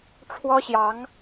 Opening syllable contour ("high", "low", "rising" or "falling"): high